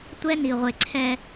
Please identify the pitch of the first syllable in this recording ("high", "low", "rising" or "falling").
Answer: high